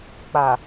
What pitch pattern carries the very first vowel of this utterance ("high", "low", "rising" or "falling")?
low